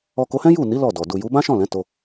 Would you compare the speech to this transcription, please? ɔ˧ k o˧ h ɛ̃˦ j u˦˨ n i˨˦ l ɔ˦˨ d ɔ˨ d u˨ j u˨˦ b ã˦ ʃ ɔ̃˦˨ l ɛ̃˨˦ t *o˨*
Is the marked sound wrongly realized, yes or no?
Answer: yes